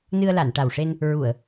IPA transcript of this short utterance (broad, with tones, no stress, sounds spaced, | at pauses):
n ɨ˧ ə̯ l a˨˩˨ n ʈ a˨˩ w ʂ e˧ n | ɹ u˨˩˨ ə̯